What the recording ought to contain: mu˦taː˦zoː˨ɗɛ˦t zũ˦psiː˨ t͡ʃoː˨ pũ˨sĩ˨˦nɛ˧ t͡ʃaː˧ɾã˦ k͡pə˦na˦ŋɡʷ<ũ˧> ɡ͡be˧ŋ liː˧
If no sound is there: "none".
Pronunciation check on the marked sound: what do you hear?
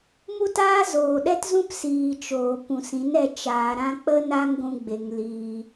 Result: ũ˧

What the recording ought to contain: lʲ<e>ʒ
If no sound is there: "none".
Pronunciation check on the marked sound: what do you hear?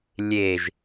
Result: e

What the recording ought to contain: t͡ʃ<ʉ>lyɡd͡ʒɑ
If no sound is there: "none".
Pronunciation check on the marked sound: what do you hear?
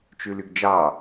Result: ʉ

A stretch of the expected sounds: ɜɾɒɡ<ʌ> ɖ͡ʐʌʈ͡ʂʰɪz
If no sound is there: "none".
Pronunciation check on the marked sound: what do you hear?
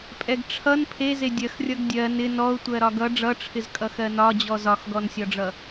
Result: ʌ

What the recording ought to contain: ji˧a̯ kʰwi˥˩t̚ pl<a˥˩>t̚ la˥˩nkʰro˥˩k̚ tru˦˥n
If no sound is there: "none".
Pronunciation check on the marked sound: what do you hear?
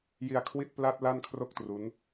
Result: a˦˥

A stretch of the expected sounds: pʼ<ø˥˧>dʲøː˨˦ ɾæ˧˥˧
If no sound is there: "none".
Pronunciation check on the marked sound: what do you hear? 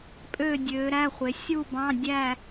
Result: ø˥˧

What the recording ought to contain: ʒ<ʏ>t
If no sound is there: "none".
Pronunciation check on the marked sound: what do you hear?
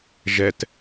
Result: ɛ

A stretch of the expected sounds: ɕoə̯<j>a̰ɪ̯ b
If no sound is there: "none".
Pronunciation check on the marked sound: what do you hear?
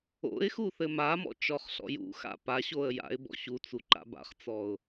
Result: j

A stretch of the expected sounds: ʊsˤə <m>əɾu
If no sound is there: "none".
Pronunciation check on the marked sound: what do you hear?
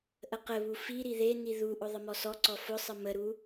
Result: m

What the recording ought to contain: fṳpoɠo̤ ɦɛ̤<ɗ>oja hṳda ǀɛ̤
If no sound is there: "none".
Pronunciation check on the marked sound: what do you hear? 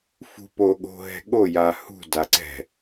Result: ɠ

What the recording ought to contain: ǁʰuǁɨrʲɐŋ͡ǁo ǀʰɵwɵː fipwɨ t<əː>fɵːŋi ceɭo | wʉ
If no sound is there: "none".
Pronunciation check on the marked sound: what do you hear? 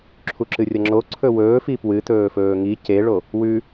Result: ɵː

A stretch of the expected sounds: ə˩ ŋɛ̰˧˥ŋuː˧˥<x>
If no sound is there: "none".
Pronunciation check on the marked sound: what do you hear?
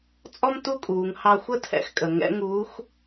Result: x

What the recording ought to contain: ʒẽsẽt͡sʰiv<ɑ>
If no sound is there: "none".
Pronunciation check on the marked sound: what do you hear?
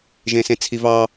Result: ɑ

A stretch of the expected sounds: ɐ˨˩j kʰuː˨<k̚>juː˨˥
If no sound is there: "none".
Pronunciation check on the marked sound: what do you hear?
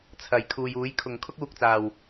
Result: none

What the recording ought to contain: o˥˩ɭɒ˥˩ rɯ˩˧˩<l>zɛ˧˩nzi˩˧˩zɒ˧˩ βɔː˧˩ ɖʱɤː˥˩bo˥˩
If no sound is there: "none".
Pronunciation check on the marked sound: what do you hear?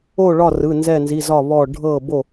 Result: n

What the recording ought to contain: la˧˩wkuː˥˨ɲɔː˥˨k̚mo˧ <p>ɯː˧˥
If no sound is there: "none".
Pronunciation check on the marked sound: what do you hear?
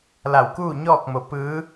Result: p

